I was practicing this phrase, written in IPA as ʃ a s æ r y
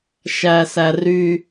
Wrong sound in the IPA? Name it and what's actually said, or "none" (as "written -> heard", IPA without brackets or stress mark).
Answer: a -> æ